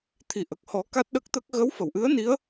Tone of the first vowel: low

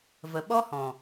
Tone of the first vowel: low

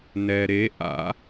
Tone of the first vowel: low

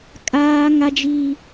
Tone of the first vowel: high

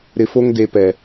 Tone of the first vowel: low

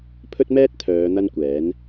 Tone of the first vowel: high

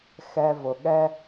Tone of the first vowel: low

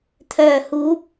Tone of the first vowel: low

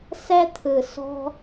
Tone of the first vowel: high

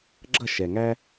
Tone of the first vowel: falling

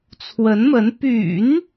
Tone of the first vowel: rising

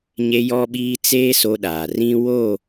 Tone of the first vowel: high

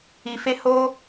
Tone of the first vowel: low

